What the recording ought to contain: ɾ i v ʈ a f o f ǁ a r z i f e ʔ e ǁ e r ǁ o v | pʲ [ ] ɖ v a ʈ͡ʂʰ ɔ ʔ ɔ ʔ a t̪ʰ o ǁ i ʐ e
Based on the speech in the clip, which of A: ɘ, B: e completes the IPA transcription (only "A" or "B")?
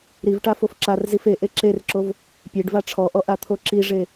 B